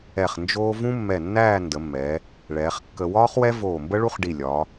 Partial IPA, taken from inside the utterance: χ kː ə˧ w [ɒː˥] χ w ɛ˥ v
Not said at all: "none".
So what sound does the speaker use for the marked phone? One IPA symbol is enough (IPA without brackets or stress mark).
ɒː˥